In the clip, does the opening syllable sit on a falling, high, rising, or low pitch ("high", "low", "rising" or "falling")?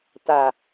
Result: low